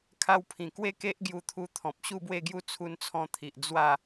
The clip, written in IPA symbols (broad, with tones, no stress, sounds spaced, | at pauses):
kʰ a˧ w pʰ ĩ˨˩ k w e˥˧ k e˦ ʔ ɡ j u˧ t̪ʰ u˧ t̪ʰ ɔ̃˨ p̚ ɕ u˥˧ b w e˥˧ ɡ j u˦ t͡sʰ u˧ n t͡sʰ ɔ̃˧ t̪ʰ i˨ ʔ d͡z w a˥˧